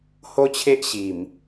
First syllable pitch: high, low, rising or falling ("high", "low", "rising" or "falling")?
high